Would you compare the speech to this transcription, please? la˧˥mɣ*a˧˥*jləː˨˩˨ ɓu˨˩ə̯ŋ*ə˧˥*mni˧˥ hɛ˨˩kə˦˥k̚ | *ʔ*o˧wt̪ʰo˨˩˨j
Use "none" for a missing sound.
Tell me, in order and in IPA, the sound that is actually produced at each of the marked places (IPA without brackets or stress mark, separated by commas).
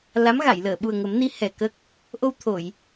a˨˩˨, ə˨˩˦, ʔ